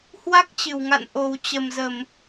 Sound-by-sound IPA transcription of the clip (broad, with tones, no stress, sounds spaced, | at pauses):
h w a˦˥ k̚ t͡ɕ ɨ˧˩ w ŋ a̰˧˨ n ʔ o˨˩ w t͡ɕ ə˨˩ m z ə˧˩˨ m